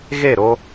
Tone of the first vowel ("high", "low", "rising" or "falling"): falling